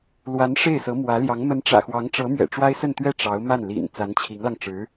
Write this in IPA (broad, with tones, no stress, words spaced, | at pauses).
lwa˧˥n ʂe˥˩ɪ̯sɤ˧˥mwä˧˥ljɑ˧˥ŋ mə˧˥nʈ͡ʂä̰˨˩xwɑ˧˥ŋʈ͡ʂɤ˧˥ mɥɛ̰˨˩ʈ͡ʂwa˥ɪ̯sə˥˧nt̪ɥɛ˥˩ ʈ͡ʂɑ˧˥ʊ̯ma˥˩n lḭ˨˩n t͡sa˧˥nt͡ɕʰi˧˥ŋlɑ˧ŋʈ͡ʂɻ̩˧˥